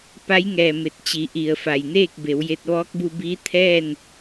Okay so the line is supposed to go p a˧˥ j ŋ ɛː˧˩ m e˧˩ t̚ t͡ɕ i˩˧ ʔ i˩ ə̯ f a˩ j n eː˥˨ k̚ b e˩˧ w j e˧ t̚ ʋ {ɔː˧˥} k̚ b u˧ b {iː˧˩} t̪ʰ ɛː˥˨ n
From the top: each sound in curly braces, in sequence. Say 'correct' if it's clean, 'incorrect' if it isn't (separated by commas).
correct, incorrect